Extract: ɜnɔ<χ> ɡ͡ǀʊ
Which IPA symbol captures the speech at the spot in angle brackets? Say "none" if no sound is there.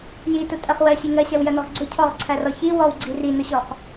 ʁ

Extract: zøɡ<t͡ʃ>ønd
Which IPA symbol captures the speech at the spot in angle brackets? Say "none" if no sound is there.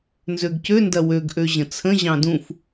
c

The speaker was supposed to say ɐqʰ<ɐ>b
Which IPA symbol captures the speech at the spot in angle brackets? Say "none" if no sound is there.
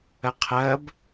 ɐ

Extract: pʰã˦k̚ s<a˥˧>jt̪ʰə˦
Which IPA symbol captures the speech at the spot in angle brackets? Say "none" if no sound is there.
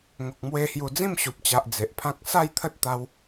a˥˧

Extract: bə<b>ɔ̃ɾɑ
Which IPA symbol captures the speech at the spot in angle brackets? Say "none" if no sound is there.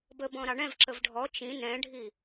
b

